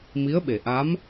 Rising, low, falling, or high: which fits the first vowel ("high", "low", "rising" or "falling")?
rising